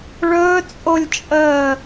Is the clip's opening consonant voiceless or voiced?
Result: voiced